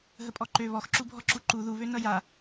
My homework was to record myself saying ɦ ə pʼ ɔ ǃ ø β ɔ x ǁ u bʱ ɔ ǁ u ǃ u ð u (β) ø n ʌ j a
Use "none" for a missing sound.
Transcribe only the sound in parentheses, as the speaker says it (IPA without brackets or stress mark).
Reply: β